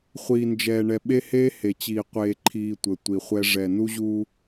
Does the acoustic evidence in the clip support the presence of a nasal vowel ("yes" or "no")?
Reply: no